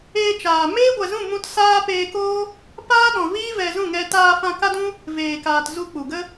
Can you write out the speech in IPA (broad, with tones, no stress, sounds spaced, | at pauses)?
eː˧ t͡ʃ aː˨ m eː˦ ɡʷ ɛ˨ z ũ˦˨ m ũ˦ t s aː˦ p eː˧ k oː˦ | p aː˦ ɗ ɔ̃˨ v iː˦ v ɛ˧ z ũ˦˨ ŋ ɛ˧ t aː˧ f ã˧ k a˦ d ũ˦ | v eː˨ k aː˨ t z u˧ k͡p u˨ ɡ ə˦